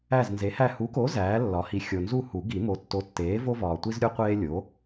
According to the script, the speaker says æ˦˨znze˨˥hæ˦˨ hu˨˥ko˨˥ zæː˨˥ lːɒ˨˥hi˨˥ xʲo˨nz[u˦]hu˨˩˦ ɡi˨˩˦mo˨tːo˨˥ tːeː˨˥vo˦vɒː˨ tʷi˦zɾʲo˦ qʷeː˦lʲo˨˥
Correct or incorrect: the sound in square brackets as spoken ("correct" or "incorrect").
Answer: incorrect